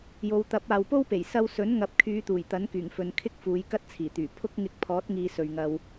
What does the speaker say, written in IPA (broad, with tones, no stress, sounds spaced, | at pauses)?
j o˨˧ w t̪ ɐ˨˥ p̚ aː˨ w p o˥ w p e˨˩ j s ɐ˧ w s ɵ˨˥ n ŋ ɐ˨ p̚ kʰ yː˨˧ t̪ uː˨˩ j t̪ ɐ˨˥ n k yː˨˩ ŋ f ɵ˨ n kʰ ɪ˥ k̚ f uː˨˧ j k ɐ˥ t̚ t͡sʰ iː˨˩ t̪ yː˨˩ pʰ ʊ˥ k̚ ŋ ɪ˧ k̚ pʰ ɔː˨˥ t̚ ŋ iː˧ s ɵ˨ ɥ ŋ ɐ˧ w